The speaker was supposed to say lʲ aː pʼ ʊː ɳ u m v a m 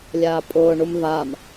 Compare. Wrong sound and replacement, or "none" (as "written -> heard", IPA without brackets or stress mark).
none